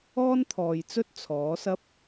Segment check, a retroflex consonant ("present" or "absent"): absent